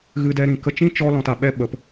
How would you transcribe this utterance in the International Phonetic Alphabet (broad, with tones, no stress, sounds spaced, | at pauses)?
ɣ ɨ˦ d ɛ˦ ɾ ĩ˧ k ə˧ t͡ʃ ĩ˦ t͡ʃ ɔ˦ l ɔ̃˧ t a˨ ɓ ɛ˦ ɓ ə˨˦ p